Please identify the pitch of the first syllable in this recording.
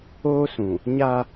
high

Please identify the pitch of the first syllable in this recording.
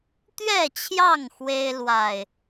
falling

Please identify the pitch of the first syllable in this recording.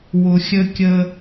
low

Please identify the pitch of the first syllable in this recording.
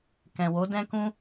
low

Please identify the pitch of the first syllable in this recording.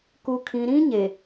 low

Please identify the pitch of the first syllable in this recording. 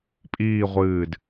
falling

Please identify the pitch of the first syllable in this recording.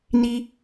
high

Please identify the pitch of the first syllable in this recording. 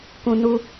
low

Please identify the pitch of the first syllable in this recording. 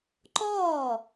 falling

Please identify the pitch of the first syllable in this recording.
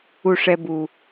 low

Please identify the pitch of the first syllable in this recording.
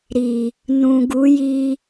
low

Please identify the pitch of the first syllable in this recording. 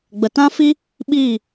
low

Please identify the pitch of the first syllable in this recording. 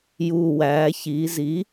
low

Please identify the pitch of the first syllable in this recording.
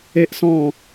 high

